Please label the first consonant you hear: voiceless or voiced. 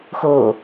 voiceless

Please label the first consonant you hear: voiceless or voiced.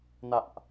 voiced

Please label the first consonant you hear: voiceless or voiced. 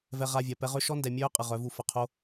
voiced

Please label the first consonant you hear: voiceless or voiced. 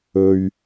voiced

